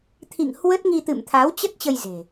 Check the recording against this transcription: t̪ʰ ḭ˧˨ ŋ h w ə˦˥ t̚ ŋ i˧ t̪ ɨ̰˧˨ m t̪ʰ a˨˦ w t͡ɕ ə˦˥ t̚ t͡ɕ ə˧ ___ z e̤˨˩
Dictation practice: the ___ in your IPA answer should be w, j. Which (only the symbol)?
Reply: j